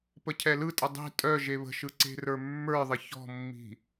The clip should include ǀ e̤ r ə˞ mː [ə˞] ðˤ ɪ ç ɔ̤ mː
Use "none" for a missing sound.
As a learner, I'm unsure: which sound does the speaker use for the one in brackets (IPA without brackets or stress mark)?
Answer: ə˞